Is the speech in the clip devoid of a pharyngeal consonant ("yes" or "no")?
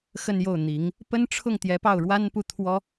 yes